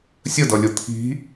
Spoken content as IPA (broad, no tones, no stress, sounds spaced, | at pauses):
sʲ ə d ʌ lʲ ʊ t̪ʰ i̤